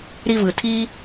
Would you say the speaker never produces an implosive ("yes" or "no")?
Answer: yes